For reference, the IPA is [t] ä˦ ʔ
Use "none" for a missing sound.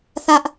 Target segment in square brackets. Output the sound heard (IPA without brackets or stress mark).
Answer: θ